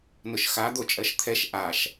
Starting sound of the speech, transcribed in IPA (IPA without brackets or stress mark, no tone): n